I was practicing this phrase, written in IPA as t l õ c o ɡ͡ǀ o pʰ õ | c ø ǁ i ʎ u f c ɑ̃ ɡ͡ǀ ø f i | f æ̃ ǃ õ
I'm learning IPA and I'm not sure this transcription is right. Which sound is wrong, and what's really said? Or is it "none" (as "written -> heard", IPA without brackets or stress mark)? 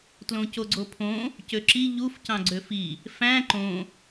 none